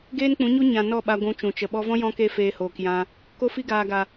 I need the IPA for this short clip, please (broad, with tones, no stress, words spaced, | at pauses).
ɡeː˦nk͡pũ˨˦ɲu˦ ɲã˨ nɔ˦˨ɓa˧ ɡʷũ˧t͡ʃũ˨t͡ʃə˨ ɓɔ˧vɔ̃˦ jɔ̃˦ke˦ feː˧hoː˨kjã˧ | ko˧fi˧ ɡaː˨ɡa˨